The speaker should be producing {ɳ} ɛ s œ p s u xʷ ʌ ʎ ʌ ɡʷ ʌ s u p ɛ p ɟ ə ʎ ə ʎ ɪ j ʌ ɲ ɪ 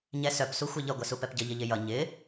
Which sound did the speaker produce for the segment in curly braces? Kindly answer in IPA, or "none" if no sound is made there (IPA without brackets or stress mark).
ɲ